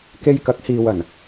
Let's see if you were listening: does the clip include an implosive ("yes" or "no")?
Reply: no